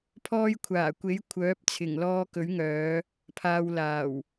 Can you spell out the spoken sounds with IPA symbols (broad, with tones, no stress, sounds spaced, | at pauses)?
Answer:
pʰ ɔː˧ j kʷʰ aː˨˩ kʷ e˨˥ j kʷʰ œː˨˥ p̚ t͡sʰ ɪ˨˩ ŋ l ɔː˧ k ɵ˨˥ ɥ ŋ œː˨˧ | pʰ aː˨ w l aː˨˩ w